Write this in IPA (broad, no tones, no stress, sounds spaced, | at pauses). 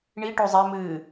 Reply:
ɳ i ʈ o zˤ ɛ m ɨː